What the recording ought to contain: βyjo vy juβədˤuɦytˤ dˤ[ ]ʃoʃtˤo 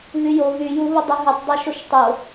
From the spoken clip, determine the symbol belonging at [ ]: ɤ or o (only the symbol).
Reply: ɤ